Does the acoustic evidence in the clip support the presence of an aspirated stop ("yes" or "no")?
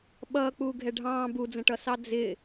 no